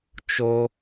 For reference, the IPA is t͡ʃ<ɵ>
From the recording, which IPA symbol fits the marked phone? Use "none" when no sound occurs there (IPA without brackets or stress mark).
o